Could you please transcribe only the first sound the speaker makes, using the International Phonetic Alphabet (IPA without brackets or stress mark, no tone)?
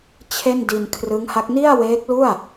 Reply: t͡ɕʰ